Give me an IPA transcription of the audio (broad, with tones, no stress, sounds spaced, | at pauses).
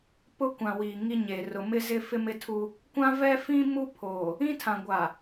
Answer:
p ʊ˦ kʷ ã˨ w iː˨ ŋ i˦ ɲ e˨ r ʊ˨ m ɪ˦ z ɪ˦ f ɪ˦ m ɪ˦ tʰ u˦ | kʷ ã˦ v ɛ˦ f ĩ˦ m u˦ pʰ oː˨ | ĩ˦ tʰ ã˨ ɡʷ a˨